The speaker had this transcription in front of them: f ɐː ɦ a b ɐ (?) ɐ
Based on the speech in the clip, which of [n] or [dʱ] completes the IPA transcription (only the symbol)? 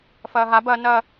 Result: n